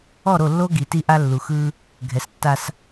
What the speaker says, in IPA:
ɔ˦˨ ɾ o˦˨ lː o˦ ɡ i˨ t i˦ ʔ a˦ lː u˨ x ɯ˦ | ɡʱ ɛ˨ s tː a˦ s

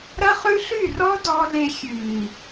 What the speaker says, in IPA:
ɾ ɐ˦ χ ʉ˦ ɬ y˦˨ r ɔ˦ d ɔ˧ l e˧ xʲ ʉ˨ i̯

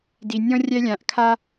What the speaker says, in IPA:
d i˨ nʲ ɔ̃˦ rʲ ɛ˦ lʲ ã˨ ʔ kʰ a˦

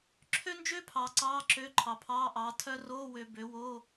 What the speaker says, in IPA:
ǁʰ ø˥ n d͡ʒ ø˥ pʰ ɑː˨ ǀ ɑː˧˥˧ ǁ ø˧˥˧ ǃʰ ɑ˨ pʰ ɑː˧˥˧ ʔ ɑː˨˦ tʰ œ˥ r oː˧˥˧ w ø˨ b ø˨˦ w oː˧˥˧

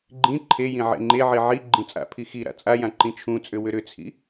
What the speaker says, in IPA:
ɡ͡ǃ ĩ ǃʰ e j ĩ ʕ ḛ ŋ͡ǃ e ʕ i ʕ i ɡ͡ǃ ĩ t͡sʼ a̰ pʰ i x i ɾ a̰ t͡sʼ a j ã ǃ ĩ t͡ʃʰ ũ t͡sʼ ʏ w ʏ ɾ ʏ t͡sʰ ḭ

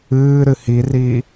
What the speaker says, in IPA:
ɨː ɾ ɨ h i r iː

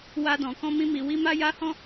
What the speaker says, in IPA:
w a˧ d ɔ̃˨ k ɔ̃˧ m ĩ˧ m i˨ w i˧ m a˦ j a˦ h ɔ̃˦

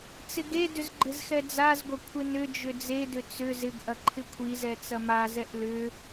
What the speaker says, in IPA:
t͡s ɪ ɡ e d ʏ z ɡ͡ǃ ɪ z x ɛ d͡z a z ɡʷ ɐ kʷʰ ɪ n ʏ d͡ʒ ʏ d͡z e d ʏ t͡s ʏ z ɪ ɡ ʔ ɐ ǃʰ ɪ kʷʰ i z ɛ t͡s ɐ m a z ɛ ʔ l ʏ

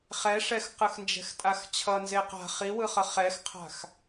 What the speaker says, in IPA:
χ ɛ ʂ ɛ x q ɯ x n d͡ʒ ɛ̤ x tʼ a x t͡ɕʰ ʌ n z e q a̤ χ i w ɯ χ ʌ χ ɛ x qʰ a̤ x

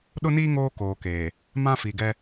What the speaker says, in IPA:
ɗ ʊ˦ n iː˦ ŋ oː˦ k oː˨ k eː˨ | m ã˦ f i˨ ɡ ɛ˦

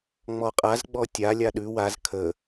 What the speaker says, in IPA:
ŋ͡m ɔ qʼ a z ɡ͡b ɔ tʲ a lʲ a ɗ ʉ w a z kʰ ə

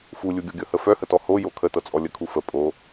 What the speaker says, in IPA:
f u lʲ u ɡʲ o ɡʲ ɤ h ə f œ h ə t ɔ h o j o kʰ ə t ɤ t͡sʼ ɔ lʲ ə kʰ u f ə pʼ o

